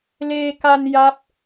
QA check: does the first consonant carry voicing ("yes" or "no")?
yes